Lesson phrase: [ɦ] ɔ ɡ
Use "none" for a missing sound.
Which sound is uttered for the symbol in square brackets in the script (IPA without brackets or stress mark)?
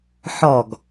ħ